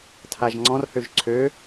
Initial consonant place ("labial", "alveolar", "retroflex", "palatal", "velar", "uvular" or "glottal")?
alveolar